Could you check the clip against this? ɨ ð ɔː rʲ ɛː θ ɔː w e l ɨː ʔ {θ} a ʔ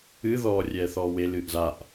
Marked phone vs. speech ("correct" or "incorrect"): incorrect